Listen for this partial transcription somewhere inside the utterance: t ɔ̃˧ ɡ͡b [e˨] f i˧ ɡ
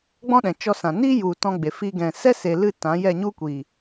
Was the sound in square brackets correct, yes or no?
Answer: yes